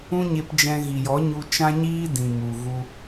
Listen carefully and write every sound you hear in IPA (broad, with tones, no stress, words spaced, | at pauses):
ũ˦ɲe˧pd͡ʒɛ̃˧ ɣi˨jɔ˨˦ ɲu˧ t͡ʃã˦ɲiː˦ dĩ˨mu˨ ɣu˧